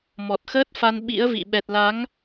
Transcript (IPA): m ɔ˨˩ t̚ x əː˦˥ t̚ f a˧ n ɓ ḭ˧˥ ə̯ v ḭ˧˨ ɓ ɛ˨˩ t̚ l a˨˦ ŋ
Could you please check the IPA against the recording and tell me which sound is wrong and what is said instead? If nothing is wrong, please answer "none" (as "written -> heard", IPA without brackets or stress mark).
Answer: none